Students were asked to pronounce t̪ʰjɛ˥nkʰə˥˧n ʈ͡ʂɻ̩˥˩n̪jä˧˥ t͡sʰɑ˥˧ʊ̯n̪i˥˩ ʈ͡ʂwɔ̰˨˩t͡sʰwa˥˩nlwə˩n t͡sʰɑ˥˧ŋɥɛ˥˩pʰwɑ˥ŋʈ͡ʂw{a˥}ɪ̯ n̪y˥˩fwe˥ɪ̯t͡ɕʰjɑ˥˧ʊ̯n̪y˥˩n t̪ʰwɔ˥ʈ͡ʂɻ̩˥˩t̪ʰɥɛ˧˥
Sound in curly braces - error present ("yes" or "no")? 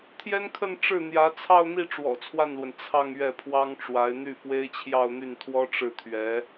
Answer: yes